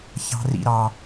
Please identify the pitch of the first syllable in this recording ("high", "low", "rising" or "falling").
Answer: high